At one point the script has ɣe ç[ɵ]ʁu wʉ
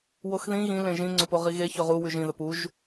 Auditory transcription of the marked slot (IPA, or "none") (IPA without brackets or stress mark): ɵ